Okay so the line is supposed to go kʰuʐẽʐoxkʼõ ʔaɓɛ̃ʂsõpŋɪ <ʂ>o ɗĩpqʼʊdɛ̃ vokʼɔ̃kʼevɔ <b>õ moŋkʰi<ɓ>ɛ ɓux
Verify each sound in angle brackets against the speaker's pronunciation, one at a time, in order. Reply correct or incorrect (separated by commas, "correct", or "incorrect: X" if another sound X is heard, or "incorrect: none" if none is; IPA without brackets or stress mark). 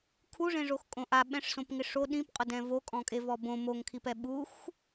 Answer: correct, correct, incorrect: p